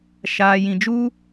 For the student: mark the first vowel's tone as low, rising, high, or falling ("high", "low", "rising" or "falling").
low